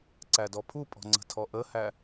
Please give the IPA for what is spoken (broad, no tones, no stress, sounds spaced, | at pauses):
ǀ æ d ɔ pʰ u pʼ ɔ̤ ŋ͡ǀ ə̤ tʰ ɔ ʔ ə h æ